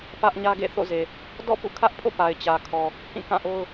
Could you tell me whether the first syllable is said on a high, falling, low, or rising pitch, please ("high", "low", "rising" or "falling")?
high